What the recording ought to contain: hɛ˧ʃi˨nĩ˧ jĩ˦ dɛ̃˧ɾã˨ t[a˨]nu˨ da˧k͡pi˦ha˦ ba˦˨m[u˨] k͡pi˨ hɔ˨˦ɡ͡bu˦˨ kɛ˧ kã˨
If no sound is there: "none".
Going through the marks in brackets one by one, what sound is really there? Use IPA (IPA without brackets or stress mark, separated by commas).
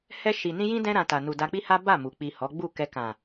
a˨, u˨